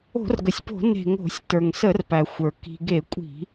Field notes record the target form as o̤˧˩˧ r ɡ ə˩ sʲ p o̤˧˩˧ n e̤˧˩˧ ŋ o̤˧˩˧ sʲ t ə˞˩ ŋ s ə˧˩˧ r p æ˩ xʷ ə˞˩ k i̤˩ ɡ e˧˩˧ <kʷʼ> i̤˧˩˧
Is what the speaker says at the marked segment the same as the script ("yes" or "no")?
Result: yes